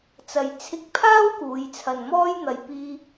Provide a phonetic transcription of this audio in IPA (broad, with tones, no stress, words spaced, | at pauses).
t͡sɐ˨jt͡sʰɪ˧k̚pʰaː˥w kuː˨˧jt͡sʰɐ˨nmɔː˥jn̪ɐ˨j piː˧